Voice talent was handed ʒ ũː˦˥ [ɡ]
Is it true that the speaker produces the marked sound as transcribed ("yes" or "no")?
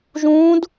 no